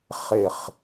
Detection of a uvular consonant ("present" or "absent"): present